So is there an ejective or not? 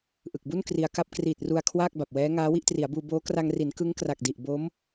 no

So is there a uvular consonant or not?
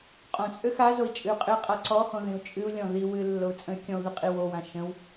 yes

